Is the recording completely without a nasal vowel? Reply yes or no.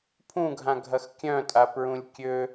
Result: no